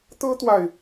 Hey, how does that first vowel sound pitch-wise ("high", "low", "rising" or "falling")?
high